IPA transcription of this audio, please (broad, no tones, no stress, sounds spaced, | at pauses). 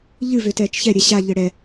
ʎ ɨ v ø t ɛː t͡ʃ ç ɛ ɾʲ ɛ ɕ a ʎ ɘ ɽ ɛ